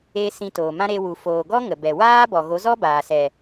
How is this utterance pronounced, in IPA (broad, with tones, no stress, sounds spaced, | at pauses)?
e˧ s ĩ˧ t oː˨ m ã˦ ɾ e˧ w u˨ f oː˨ ɡ ɔ˦ ŋ ə˨ b ɛ˨ w aː˦ b ɔ˨ ɣ o˨˦ z ɔ˦ b aː˨ s ɛ˨